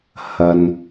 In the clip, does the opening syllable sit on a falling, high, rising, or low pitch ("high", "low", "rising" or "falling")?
low